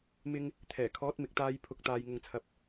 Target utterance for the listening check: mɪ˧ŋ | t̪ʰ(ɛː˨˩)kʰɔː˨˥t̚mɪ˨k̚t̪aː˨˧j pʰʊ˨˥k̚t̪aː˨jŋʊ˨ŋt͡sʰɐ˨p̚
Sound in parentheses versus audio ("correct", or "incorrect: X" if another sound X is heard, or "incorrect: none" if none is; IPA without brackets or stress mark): correct